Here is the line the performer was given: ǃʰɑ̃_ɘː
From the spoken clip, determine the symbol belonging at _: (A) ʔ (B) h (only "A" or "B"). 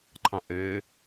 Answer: A